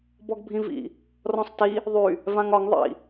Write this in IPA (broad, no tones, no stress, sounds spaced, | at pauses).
b ɔ ɡ bʱ ĩ v ḭ | r ɔ̃ sˤ t i | ðˤ y | v ã ŋ ɒ ŋ ðˤ ḭ